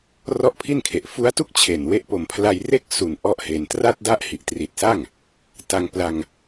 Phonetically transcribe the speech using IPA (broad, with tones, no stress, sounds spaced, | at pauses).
r ɔ˥˩ ʔ pʰ i˥˩ n kʰ e˨˩ ʔ f u˦˥ a̯ t u˥˩ k̚ t͡ɕʰ e˨˩ n w e˦˥ ʔ p o˨˩ m pʰ l a˧ j r e˥˩ k̚ s u˨˩ n ʔ ɔ˥˩ ʔ h e˧ n t r a˥˩ t̚ d a˥˩ ʔ h i˨˩ ʔ t r i˨˩ t̚ s a˥˩ ŋ | t a˧ ŋ p l a˧ ŋ